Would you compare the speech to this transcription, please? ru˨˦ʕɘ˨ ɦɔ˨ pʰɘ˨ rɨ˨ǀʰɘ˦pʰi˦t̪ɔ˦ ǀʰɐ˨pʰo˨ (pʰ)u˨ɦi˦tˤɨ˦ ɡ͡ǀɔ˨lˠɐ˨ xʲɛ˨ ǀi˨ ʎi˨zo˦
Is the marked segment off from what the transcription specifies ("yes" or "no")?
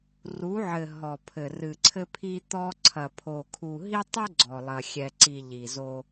yes